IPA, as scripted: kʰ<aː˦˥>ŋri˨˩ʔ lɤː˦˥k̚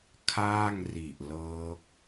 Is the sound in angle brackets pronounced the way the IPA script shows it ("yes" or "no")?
no